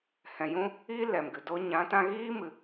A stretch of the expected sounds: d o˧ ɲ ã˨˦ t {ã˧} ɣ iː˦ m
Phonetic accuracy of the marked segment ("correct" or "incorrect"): correct